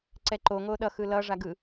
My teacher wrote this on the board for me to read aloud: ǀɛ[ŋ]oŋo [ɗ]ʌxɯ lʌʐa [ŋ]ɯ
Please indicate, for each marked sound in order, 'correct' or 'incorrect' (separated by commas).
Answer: incorrect, correct, incorrect